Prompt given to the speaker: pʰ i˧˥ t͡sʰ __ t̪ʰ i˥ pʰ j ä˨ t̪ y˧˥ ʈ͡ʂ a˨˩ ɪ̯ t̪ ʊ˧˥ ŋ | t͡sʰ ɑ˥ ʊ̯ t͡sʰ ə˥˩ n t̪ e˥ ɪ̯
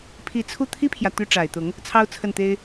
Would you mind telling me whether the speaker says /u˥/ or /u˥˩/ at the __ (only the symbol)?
u˥˩